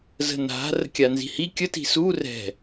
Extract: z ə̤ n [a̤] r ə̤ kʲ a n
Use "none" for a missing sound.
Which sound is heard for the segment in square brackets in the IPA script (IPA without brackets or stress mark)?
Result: a̤